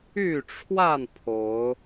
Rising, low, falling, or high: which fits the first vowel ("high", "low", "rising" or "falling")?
falling